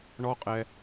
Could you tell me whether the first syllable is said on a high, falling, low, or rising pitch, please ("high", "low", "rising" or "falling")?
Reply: high